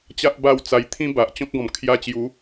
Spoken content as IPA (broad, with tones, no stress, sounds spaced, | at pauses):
t͡ɕ a˦ ʔ b a˥˧ w t͡s a˧ j t̪ʰ ĩ˦ b a˨ ʔ t͡ɕ ɔ̃˦ k̚ ɡ ɔ̃˨˩ m kʰ j a˧ t͡ɕ j u˨˦